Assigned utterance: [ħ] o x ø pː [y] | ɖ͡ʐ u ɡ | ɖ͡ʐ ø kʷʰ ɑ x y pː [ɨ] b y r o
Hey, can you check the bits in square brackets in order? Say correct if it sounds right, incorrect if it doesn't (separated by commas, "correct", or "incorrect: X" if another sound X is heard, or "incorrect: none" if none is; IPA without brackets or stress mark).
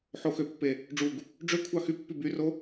correct, incorrect: e, incorrect: y